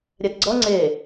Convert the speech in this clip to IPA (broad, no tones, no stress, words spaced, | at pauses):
ɾʲɛtɡ͡ǀʌ ŋ͡ǀe